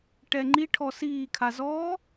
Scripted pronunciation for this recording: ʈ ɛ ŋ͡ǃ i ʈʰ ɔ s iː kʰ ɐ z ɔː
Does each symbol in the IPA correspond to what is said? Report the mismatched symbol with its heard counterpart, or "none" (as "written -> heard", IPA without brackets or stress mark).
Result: ɐ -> a